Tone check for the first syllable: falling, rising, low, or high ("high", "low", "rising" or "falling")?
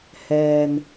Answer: low